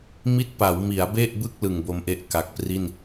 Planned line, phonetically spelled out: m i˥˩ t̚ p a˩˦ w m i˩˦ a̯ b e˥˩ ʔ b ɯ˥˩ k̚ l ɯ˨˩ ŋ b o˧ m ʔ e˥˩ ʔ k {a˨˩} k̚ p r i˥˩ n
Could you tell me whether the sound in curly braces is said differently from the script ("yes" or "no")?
no